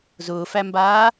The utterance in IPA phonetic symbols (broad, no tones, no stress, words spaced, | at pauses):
zʊːfæmbaː